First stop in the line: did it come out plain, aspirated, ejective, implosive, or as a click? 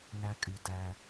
ejective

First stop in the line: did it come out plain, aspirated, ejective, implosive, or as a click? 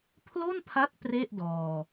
aspirated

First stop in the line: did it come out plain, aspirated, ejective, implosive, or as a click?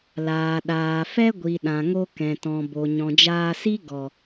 implosive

